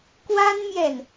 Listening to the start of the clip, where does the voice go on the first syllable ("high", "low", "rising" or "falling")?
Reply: high